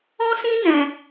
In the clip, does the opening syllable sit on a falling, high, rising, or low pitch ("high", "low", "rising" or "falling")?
high